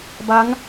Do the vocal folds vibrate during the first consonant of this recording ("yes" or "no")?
yes